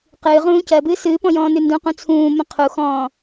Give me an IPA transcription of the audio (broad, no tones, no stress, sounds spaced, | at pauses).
q ɨː ʁ ũː c ɜ b ɨː s ɨː p ɔ̃ j ɔ̃ː n ʉ n d ũ q ũ t͡sʰ ũː m ə̃ qʰ u x ɔ̃ː